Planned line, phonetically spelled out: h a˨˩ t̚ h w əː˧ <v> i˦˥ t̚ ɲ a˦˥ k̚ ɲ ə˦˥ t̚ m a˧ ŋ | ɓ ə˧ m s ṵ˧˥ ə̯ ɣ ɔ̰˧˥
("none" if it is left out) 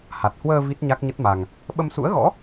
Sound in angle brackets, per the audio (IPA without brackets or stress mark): v